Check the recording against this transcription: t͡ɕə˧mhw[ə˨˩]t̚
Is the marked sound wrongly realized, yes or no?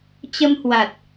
yes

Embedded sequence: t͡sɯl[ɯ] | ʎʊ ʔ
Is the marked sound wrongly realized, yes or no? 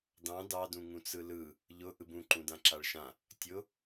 no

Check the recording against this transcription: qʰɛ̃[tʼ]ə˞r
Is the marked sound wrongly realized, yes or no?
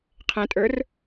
no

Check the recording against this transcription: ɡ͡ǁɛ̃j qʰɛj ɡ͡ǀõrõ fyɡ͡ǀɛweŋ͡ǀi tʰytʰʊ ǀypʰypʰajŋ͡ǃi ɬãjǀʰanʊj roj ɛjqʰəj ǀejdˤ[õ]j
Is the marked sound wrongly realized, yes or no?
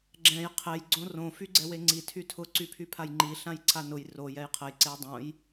no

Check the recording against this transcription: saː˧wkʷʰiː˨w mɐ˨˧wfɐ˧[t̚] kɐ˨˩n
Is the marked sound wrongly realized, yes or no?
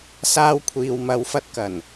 no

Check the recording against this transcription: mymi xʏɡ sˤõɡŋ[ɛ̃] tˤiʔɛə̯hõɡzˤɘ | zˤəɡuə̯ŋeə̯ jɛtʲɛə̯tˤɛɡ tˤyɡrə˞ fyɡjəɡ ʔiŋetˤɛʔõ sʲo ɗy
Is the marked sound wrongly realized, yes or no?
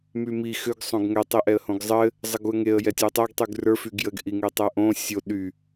yes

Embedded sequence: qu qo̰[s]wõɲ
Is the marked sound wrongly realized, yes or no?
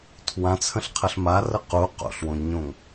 yes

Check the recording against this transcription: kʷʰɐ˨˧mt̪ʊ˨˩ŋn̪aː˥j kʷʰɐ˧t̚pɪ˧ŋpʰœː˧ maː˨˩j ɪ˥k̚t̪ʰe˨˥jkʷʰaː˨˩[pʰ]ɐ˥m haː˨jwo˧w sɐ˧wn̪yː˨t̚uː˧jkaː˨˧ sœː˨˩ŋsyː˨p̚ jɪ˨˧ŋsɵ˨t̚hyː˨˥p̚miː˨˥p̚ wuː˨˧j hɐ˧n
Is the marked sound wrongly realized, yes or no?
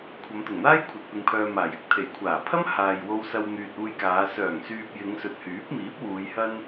no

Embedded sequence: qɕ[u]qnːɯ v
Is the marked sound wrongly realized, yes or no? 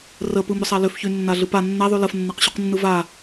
yes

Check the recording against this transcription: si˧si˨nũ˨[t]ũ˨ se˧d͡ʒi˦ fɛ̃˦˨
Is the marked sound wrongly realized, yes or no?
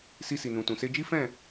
no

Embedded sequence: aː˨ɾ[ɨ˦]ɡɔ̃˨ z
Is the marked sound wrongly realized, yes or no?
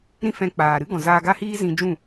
no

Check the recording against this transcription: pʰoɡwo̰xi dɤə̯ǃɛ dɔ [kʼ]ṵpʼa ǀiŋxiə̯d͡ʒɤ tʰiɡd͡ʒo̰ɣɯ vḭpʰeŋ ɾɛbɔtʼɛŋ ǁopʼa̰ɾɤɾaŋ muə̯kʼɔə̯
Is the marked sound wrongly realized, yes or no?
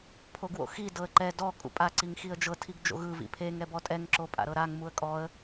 no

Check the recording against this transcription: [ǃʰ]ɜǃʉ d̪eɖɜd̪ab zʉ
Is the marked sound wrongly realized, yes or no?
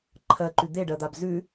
no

